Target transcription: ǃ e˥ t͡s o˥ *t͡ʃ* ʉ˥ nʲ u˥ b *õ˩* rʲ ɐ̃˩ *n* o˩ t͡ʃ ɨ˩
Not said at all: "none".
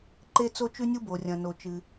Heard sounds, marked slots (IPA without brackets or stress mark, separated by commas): t͡ʃ, o˩, n